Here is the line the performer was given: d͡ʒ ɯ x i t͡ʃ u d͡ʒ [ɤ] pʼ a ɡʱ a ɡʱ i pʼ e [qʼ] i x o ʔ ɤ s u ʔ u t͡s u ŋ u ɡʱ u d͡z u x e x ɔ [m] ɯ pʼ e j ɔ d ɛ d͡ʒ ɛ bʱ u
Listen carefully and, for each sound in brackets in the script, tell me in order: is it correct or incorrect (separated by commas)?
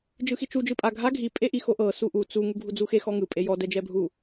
incorrect, incorrect, incorrect